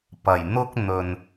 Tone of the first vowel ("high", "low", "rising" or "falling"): low